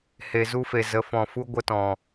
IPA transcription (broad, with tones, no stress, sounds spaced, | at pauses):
h e˨ z u˧ f e˨ z ə˨ f ɔ̃˨ f u˧ ɡʷ ə˧ t ɔ̃˨